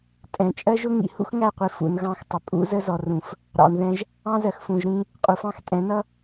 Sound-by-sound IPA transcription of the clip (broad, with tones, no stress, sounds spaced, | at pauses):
tʼ ɛ̃˨ t͡ʃʼ ɜ˦ ʒ ʊ˦ ŋ ḭ˨ h ṵ˦ x ŋ æ˦˨ qʷ i˨ f ṵ˨ n ɣ ɑ̃˦˨ x tˤ ə˨ pʼ ṵ˨˦ z ə˦ z ɔ˨ r ũ˨ f | ɾ ɑ̰˨ n ð ɛ̃˦ ʒ | ɑ̃˦ z ɜ˨ x f ũ˨ ʒ ɾ ĩ˦ | qʼ u˨ f ɑ̃˦ x tʼ ɛ̃˨˦ n ʌ˦